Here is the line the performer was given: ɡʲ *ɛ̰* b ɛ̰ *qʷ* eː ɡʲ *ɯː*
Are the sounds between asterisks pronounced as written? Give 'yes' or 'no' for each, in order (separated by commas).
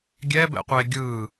no, yes, yes